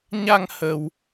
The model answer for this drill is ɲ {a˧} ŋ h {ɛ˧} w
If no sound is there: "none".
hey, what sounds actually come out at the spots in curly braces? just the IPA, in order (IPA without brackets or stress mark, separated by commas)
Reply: a˧, ə˧